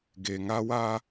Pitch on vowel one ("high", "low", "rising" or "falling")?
low